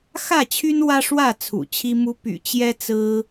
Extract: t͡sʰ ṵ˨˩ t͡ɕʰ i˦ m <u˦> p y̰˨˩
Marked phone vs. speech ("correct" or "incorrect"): correct